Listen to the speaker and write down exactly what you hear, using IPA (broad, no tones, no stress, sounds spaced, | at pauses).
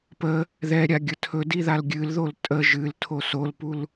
p ə | ð ɛ ɾʲ a ɡʲ ə tʰ ɵ d i ð a l ɡʲ ɨ l ð o l tʼ ə ʒ ɨ l tʰ o s o l p u l